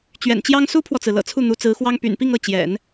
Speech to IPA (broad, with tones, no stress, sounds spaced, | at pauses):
t͡ɕ ɥ ɛ̰˨˩ n t͡ɕ j ɑ˥ ŋ s u˥ pʰ w ɔ˨ t͡s ɹ̩˩ l ɤ̰˨˩ t͡sʰ u˥˩ n̪ u˧˥ t͡s ɹ̩˧˥ x w ɑ˥ ŋ p y̰˨˩ n p i˥˧ ŋ ɤ˥˩ t͡ɕ j ɛ̰˨˩˦ n